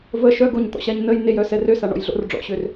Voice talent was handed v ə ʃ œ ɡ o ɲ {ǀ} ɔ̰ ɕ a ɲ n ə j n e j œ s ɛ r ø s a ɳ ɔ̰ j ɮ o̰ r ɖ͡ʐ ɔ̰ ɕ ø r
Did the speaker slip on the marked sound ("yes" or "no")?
yes